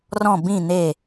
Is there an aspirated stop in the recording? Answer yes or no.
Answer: no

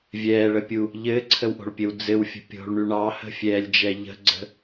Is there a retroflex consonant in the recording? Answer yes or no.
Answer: yes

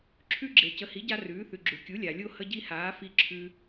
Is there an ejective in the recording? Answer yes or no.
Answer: no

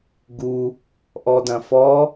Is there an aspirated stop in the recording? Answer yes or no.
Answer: no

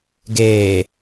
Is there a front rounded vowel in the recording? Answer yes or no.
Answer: no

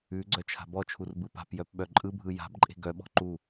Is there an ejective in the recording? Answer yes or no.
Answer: yes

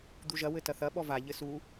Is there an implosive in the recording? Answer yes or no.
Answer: yes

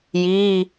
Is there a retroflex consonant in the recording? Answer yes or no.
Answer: no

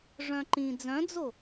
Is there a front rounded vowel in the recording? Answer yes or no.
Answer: yes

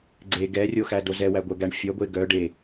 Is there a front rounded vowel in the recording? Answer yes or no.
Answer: yes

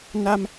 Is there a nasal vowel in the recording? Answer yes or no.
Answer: no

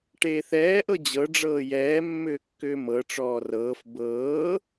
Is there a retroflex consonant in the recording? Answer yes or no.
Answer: yes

